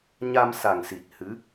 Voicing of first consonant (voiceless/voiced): voiced